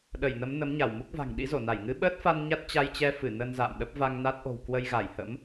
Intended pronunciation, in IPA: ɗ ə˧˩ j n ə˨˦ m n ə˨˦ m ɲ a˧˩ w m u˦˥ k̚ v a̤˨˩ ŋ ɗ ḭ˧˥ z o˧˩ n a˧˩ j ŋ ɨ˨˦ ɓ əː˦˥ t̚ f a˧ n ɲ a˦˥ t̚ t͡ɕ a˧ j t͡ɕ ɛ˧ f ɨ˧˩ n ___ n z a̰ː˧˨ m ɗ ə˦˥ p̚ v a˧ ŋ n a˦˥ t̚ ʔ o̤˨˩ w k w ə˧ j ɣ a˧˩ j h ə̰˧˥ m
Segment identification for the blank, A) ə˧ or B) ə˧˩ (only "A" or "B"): A